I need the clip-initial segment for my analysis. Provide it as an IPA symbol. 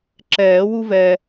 ǁ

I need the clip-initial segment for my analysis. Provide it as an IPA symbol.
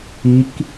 i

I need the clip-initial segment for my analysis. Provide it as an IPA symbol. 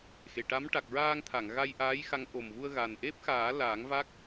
x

